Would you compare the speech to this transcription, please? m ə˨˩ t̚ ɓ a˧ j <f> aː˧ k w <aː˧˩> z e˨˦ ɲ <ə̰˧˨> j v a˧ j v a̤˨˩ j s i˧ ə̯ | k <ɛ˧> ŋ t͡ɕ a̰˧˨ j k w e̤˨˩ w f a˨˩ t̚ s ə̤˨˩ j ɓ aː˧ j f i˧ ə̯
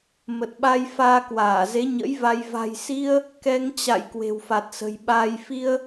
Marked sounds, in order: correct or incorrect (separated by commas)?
correct, correct, incorrect, correct